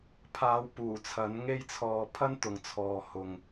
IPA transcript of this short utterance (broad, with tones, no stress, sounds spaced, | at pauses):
pʰ aː˨˧ w p uː˨˩ t͡sʰ ɐ˨˥ n ŋ e˥ j t͡sʰ ɔː˧ pʰ ɐ˥ n t̪ ʊ˨ ŋ t͡sʰ ɔː˨ h ʊ˨ ŋ